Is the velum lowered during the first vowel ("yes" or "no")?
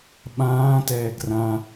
yes